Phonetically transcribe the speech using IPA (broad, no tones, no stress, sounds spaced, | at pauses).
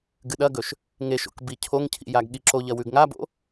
ɡ ɨ ɗ ɐ ɡ ɵ ʃ | ŋ e ʃ o̰ k b i cʰ o ŋ cʰ ḭ j a ɡ ɠ i ǁ o ʎ ɐ w ʉ ɡ ŋ a b o̰